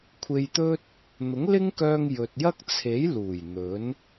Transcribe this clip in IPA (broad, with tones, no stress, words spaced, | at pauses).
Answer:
kʷʰe˧jt̪ɵ˥t̚ | n̪ʊ˨˥ŋlɪ˥ŋkœː˧ŋ jɵ˨t̚jɐ˥k̚ t͡sʰe˨˥jluː˨˩j n̪ɵ˨˥n